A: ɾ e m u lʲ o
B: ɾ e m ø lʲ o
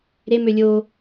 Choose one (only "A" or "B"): B